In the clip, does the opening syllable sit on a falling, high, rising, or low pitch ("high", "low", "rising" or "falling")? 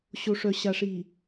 low